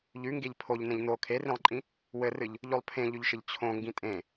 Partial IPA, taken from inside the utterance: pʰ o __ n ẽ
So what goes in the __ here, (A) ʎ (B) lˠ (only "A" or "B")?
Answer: A